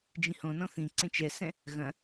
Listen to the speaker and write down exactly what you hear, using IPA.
d͡ʒĩhõnɔ̃ θĩ ǀẽt͡ʃɛsɛ̃ | ɣɐ̃

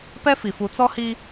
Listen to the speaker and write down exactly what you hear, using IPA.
pɛ˦fi˨fu˨˦ t͡sɔ˦hi˦

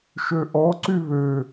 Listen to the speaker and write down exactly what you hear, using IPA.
ʃøʔɔ ǀyβø

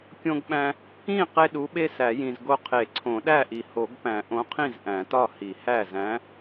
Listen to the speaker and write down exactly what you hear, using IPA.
kʲõ˦ɡɓæ̃˦ | ĩ˥˩ qe˦ ɗu˨˥ɓe˦ sæ˨˩˦jĩ˨zɡo˦ qʰe˨˩˦ǀʰõ˨˩˦ɗæ˥˩ʔi˨ ho˨˩˦ɡpæ̃˨˩˦ʔõ˨˥qʰĩ˥˩z ʔæ̃˨˩˦tɒ˥˩hi˨˩˦hæ˥˩ zæ̃˨˥

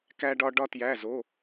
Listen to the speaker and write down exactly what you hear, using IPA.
kæ˥ɖɒ˥ ɖɒ˥tjæ˧˥˧zo˧˥˧

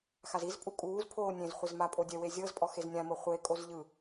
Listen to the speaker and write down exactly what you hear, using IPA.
xazizpʼu kʼuːzpʰoː nʲẽzχʷez mapʼo dʲɛwe zʲɤzpʼɔ xeznʲãmɤ χʷekʼoz ʎɯ

